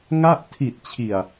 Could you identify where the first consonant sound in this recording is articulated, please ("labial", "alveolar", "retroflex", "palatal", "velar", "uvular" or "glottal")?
velar